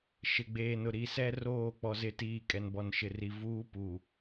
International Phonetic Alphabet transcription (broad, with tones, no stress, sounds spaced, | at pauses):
ʃ ɪ˨ ɡ͡b eː˨ n ʊ˨ ɾ i˨ s ɛ˦ r oː˦˨ k͡p ɔ˦ z ɪ˦ t iː˦˨ kʼ ɛ˨ n b ɔ˨ n ʃ ɪ˨ r i˨ v uː˦ p u˨